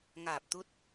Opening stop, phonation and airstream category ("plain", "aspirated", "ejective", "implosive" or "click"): plain